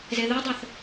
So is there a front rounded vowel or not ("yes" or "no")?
yes